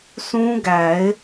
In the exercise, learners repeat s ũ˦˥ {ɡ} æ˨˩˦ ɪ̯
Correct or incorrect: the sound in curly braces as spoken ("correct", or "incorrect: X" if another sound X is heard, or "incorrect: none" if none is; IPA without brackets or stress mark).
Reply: correct